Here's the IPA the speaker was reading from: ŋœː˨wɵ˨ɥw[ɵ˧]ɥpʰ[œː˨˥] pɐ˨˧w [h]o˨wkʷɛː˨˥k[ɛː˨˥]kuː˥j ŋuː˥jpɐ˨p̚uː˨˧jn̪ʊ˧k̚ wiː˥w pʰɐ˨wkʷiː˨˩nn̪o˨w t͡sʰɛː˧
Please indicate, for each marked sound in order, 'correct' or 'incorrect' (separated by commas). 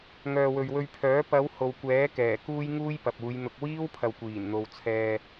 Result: correct, correct, correct, incorrect